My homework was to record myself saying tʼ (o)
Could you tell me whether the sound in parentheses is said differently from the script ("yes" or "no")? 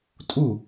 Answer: yes